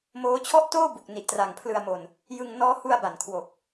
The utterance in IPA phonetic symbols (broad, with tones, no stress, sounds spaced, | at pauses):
m oː˦˥ t͡ɕʰ ɔ˥˩ ʔ t oː˥˩ b u˨˩ k̚ n i˨˩ ʔ t r a˨˩ ŋ pʰ l ɯ˧ a̯ m o˧ n | j ɯ˧ ŋ n ɔː˦˥ h u˧ a̯ b a˨˩ n kʰ w o˨˩ k̚